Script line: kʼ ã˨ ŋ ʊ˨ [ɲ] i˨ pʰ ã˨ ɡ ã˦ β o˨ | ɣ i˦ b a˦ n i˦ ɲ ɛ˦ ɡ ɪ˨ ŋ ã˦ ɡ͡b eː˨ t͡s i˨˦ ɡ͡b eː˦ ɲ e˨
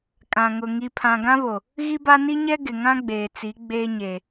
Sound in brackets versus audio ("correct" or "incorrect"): incorrect